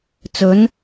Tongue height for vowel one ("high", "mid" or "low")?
mid